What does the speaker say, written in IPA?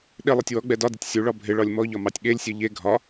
ɗ ɪ lˠ ɛ tʲ w ɔ ɡ͡b ɛ d ɒ d ɪ tʲ sʲ u ɭ ɒ bʱ ɪ ɭ ɒ lʲ m ɔ ʎ ɒ m ɑ tʲ ɠ e lʲ sʲ ɛ ʎ e ɡʱ ɒ

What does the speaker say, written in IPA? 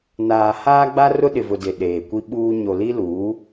n aː˨ h aː˦ ɡ͡b a˦ r ʊ˦ ɗ ɪ˨ v ʊ˨ d ɪ˨ ɗ eː˨ kʷ i˦ ɓ uː˦ ɲ o˨ l i˦ l uː˨˦

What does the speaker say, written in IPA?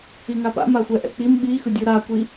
i ŋ a p a̰ m a xʷ ɛ ʔ ɛ̰ k͡p i m ɓ i x ɯ dʲ u ɾ a kʷ i

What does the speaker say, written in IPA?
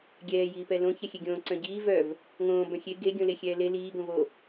ɡʲ ɛː j iː p ɛ l õ ç ɛ xʲ e ɡʲ õː ǀ œ̃ ɟ iː v œ v | ŋ õː b œ̃ xʲ e ɡ e ɡʲ õ l e xʲ ɛː l e l iː ɡ õ v o

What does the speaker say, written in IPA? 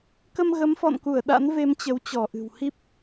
k ə˧ m ɣ ə˨˦ m f ɔ̰˧˨ n k u˧˩ ə̯ ɗ a̰˧˥ n v e˧ m t͡ɕ ə˨˦ w t͡ɕ ɔ˧˩ ʔ ɨ̤˨˩ w h i˦˥ p̚

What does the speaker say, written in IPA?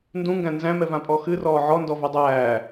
n d ũ ŋ ɡ æ̃ n z æ̃ m ɛ v ã pʼ ɔ x ɨ r ɔː ʕ ɔ n d ɔ v ɛ dˤ æː

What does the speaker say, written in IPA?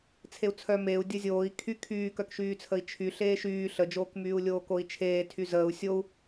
t͡sʰ e u̯ t͡sʰ œ m e u̯ dʲ ə zʲ oː i̯ kʰ y kʰ yː k œ k ʃ yː t͡sʰ ə i̯ t͡ʃʰ y ɬ eː ʃ yː ɬ ə d͡ʒ oː k m yː u̯ lʲ oː k o i̯ t͡ʃʰ eː tʰ y z əː u̯ sʲ o u̯

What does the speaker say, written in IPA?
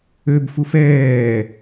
ø b f u f ɛː

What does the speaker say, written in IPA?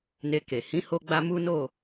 n e˧ k e˨ h ĩ˨˦ h o˧ ɡ͡b a˧ m u˦ n o˦˨

